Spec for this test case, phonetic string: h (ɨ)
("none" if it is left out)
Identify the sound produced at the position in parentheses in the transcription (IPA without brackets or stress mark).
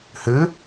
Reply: ɨ